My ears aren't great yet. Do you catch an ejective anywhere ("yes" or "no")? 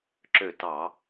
no